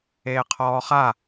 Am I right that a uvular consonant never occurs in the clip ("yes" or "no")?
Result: no